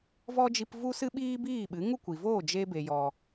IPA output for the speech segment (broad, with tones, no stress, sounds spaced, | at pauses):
v ɔ˦ d͡ʒ i˧ p v u˦ s ɨ˦ ɓ iː˦ b iː˦˨ ɓ ɨ˨˦ ŋ u˦ kʷ i˨ v oː˦˨ d͡ʒ e˧ b e˨ j ɔ˨